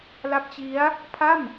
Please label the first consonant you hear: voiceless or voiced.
voiced